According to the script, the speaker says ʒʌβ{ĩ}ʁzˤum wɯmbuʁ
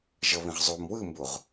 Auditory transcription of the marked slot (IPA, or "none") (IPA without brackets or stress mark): ĩ